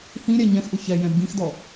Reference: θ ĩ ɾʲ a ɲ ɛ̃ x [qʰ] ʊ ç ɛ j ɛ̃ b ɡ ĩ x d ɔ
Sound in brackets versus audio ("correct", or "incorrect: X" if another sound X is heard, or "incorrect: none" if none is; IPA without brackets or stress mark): incorrect: ʔ